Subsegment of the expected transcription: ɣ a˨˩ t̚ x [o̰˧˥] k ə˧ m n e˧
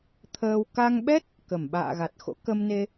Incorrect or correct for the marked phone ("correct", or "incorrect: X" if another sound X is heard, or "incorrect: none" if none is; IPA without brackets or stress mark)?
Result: correct